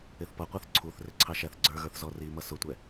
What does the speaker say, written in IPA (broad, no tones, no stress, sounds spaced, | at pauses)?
ɪ θ p ʌ qʷ ʌ θ ǀʰ u θ r ɪ ǀʰ ɑ ʃ æ θ ɡ͡ǀ ə˞ ɣ ə˞ θ z ɔ r i m ʌ s ʊ tʷ ɛ